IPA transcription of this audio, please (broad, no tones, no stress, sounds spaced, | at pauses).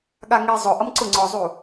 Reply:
ɠ a ŋ i zˤ ʊ ʔ ʌ m ǀ ʊ ŋ͡ǀ ɔ zˤ u